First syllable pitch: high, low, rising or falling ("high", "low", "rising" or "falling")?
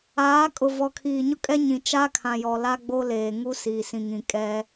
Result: rising